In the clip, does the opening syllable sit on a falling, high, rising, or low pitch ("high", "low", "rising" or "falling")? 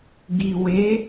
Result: low